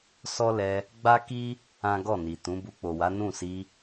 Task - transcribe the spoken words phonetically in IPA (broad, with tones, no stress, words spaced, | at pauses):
sɔ˦lɛ˧ | ɡ͡ba˦ki˦ | ã˦ ɡɔ˦˨ ni˨tũ˨˦ bu˧k͡po˨wa˨˦ nũ˦˨si˧